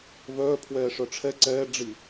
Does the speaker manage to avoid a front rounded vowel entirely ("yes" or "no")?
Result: no